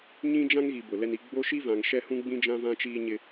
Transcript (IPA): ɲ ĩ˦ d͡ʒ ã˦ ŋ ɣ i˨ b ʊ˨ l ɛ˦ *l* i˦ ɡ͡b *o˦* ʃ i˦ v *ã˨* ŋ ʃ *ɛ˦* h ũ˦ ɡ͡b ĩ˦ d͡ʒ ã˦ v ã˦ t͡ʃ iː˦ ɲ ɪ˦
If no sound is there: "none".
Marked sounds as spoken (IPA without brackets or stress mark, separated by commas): n, o˦, ã˨, ɛ˦